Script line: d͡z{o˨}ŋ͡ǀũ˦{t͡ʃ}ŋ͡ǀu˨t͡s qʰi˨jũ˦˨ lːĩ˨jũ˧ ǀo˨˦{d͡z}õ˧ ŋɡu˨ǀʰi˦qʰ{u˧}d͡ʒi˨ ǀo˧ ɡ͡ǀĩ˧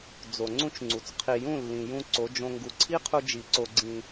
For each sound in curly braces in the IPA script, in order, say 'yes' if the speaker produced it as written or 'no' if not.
yes, yes, no, yes

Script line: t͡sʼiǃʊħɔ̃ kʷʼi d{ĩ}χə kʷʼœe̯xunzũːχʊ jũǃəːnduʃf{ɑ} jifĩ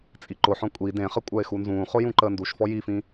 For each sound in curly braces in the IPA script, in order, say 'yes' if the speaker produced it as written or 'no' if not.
no, no

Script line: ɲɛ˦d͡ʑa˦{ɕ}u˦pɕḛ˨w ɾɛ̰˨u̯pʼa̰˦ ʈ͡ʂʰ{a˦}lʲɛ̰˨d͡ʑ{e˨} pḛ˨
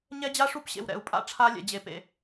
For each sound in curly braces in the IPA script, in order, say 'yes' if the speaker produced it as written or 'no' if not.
no, yes, yes

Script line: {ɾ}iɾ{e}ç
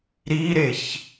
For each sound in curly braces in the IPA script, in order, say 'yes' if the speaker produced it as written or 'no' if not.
yes, yes

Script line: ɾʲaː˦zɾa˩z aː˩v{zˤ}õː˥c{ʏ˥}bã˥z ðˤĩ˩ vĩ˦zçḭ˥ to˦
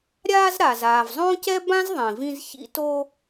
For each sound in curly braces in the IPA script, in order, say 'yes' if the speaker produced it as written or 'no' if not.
yes, no

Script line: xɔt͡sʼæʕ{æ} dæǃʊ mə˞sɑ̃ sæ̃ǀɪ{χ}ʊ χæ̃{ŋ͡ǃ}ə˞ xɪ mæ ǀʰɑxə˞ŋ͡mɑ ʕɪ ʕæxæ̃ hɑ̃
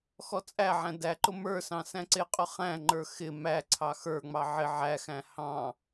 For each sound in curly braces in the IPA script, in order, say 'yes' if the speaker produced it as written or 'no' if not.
no, no, yes

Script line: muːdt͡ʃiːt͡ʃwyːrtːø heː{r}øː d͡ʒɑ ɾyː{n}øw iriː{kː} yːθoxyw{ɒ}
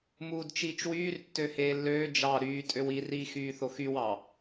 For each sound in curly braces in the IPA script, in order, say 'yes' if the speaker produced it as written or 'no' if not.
no, no, no, no

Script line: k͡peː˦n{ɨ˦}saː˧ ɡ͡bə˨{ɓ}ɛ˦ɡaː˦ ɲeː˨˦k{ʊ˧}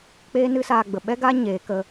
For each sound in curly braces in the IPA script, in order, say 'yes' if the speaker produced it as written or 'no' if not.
yes, yes, no

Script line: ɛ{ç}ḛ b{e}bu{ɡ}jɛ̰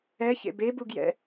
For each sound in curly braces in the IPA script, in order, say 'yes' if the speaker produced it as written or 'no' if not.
yes, yes, yes

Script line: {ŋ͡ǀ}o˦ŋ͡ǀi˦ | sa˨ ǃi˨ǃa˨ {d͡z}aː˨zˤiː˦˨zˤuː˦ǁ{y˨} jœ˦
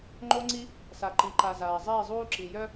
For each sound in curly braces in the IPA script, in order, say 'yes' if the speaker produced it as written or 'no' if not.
no, no, no

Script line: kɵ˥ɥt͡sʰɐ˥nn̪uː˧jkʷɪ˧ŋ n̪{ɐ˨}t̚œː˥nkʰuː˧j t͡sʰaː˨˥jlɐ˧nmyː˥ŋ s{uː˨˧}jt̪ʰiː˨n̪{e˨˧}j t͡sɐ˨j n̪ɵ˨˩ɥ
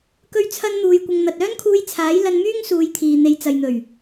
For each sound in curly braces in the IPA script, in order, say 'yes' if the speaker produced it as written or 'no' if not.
yes, yes, yes

